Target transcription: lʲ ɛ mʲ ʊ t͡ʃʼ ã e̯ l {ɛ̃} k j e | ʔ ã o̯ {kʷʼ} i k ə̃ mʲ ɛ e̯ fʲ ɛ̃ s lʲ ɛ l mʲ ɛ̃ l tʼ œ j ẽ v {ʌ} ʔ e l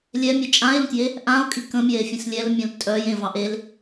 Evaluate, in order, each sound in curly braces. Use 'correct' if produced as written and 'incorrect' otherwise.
incorrect: ə̃, incorrect: kʼ, incorrect: ɑ

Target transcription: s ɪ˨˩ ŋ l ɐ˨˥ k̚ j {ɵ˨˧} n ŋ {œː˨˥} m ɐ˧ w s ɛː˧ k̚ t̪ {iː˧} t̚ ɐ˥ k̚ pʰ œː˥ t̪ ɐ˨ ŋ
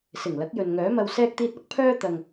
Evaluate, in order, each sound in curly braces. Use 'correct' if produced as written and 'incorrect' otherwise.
incorrect: ɵ˨, correct, correct

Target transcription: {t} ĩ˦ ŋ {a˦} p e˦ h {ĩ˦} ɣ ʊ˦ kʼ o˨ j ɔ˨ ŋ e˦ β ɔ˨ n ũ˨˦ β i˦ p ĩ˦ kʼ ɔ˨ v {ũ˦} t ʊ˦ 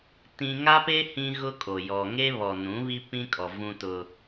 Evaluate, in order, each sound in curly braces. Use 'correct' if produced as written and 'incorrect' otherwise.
correct, correct, correct, correct

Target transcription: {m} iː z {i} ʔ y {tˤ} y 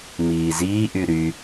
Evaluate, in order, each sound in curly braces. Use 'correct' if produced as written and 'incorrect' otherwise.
correct, incorrect: iː, incorrect: ɾ

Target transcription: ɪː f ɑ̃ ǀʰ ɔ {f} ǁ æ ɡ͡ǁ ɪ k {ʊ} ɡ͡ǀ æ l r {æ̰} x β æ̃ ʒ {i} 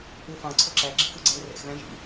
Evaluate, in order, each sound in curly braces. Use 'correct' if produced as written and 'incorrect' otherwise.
incorrect: none, correct, incorrect: ɛ̰, incorrect: ḭ

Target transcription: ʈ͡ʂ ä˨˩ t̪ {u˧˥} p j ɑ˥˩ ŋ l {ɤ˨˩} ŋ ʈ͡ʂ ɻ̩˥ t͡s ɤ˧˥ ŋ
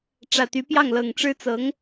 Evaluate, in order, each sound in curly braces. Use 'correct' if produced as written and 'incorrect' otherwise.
incorrect: y˧˥, correct

